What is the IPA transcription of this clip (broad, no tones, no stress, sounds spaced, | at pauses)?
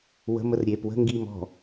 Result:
w ə̤ m ə r ɾʲ eː p w ə̤ ŋ ɡ iː m ɔ̤